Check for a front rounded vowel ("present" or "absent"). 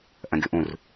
present